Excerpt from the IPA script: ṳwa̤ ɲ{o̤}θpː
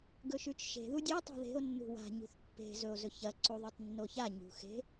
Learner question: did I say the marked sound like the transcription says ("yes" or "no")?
no